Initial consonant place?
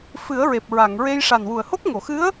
labial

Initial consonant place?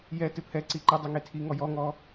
palatal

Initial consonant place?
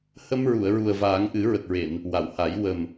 glottal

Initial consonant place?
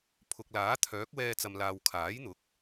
labial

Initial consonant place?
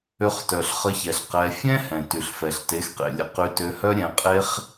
uvular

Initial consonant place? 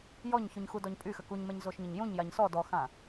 palatal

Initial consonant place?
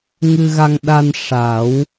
velar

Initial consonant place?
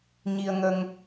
palatal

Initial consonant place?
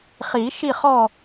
uvular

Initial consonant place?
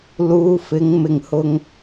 alveolar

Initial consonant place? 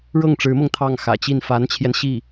retroflex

